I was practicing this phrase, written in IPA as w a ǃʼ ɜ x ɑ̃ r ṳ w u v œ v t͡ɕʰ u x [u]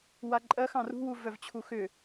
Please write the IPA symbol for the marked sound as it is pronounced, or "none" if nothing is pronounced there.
ʏ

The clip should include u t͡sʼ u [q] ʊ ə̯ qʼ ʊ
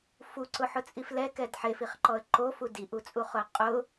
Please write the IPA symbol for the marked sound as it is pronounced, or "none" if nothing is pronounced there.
χ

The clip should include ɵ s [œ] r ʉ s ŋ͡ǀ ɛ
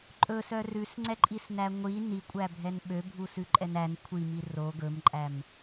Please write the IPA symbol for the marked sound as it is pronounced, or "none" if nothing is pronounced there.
œ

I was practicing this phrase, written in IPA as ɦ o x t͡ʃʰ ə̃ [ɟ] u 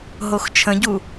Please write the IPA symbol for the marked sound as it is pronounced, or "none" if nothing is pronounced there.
ɟ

